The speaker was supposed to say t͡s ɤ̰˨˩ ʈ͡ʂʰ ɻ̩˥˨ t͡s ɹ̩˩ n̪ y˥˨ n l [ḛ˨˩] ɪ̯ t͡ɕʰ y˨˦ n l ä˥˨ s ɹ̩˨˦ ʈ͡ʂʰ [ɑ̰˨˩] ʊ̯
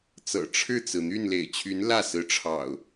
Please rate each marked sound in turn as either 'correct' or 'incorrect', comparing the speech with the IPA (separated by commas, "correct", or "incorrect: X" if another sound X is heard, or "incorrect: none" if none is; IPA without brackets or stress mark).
correct, correct